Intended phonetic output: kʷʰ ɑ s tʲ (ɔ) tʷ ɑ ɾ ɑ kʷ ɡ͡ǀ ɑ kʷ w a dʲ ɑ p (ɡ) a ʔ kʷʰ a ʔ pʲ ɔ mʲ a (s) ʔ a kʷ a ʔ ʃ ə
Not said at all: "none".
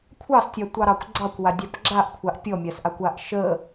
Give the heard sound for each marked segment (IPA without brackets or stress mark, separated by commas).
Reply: ɑ, ɡ͡ǁ, s